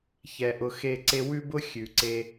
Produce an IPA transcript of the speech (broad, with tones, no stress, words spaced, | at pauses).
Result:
çɛ˨ʔʊ˧xe˦˨ǀe˦ wʉ˦bʊ˦ xʲʉ˨ǀe˧